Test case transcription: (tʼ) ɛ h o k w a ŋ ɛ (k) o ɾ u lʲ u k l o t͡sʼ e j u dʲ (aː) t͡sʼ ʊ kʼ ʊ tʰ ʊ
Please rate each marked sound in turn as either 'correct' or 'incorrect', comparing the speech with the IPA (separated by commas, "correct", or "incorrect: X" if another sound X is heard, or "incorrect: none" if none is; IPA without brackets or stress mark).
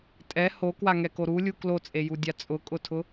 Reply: correct, correct, incorrect: a